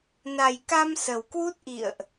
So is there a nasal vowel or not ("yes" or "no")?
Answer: no